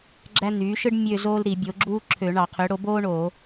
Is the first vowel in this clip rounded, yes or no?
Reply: no